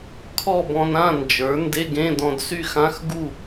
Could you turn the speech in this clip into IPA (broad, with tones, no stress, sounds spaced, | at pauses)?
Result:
kʰ ɔ˥˨ b ɔ̃˧ n ã˥˨ n d͡ʒ ə˞˩˥ n d e˧˥˧ ɡ ẽ˧˥˧ d ɔ̃˧ d s y˥˨ x ã˧˥˧ x ɡ u˥˨